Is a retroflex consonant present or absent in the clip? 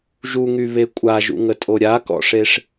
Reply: present